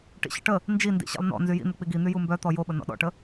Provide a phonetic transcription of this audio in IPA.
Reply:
ʈḭɕə̰ʈə | nd͡ʒi ndḭɕḭlˠnɔ̰ nzyjḭn̪ək͡piɡ in̪y jumbœt̪ɔ joɓə nɔ̰ɗɔ̰ʈə

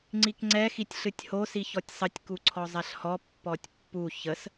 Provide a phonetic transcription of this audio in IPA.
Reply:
ŋ͡ǀikŋ͡ǀɛ xitʲɬɨtʲho siçɔtʲsˤətʲ kuǀʰɔzˤɛɬhɔ pːɔtʲpːu çəs

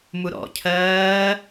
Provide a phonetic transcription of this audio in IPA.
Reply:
muɾɔ̰cʰɜː

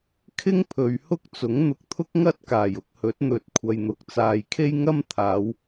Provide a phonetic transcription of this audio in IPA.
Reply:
kʰɪ˥ŋpʰɵ˨˧ɥhʊ˥k̚t͡sʊ˨˥ŋ n̪ʊ˧k̚t̪ʰʊ˥k̚ŋɐ˥t̚kaː˨˩j ʊ˧k̚hɵ˨˥t̚n̪ɵ˨˥t̚ kʷʰɐ˨jn̪ʊ˨k̚ t͡saː˨jkʰe˥jŋɐ˥m t̪ʰaː˨˧w

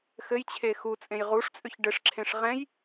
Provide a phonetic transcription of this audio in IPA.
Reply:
xɘjt͡ɕʰe xut͡sʼẽj ʁuʂt͡sʼʏç ɖɘʂǁʰẽʂ ʁɛ̃j

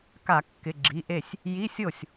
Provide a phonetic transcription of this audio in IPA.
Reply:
ka˧˩˧kːɪ˩˧˩ ɡ͡ǁi˩˧˩ʔe˥˩sʲ | ji˧˥˧sʲo˥˩sʲ

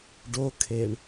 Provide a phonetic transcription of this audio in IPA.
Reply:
ɖokʰeɳ

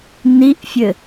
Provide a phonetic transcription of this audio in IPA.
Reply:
niʔfʲɘ

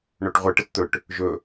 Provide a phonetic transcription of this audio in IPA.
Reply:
ɳoʈʁʷə ʈətt̪ɵʈ | ʒɵ

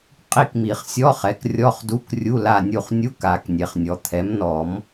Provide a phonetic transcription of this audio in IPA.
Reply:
qʼi˦˨kmi˨˩˦χsʲɔ˧˥˧χɛ˩˥k rʲɔ˧˥˧χdu˧˥˧k rʲu˧˥˧la˦˨nʲu˦˨χ nʲu˧˥˧ka˨˩˦k nʲe˩χnʲɔ˩t̪ʰɛ˩˥mnɔ˨˩˦m

